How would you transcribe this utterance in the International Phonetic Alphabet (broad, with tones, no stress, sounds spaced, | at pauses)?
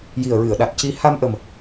j i˨˩ ə̯ ɹ ɨ˨˩˨ ə̯ ɗ a˨˩ t̚ c i˧ h a˧ m ʔ ə˨˩ m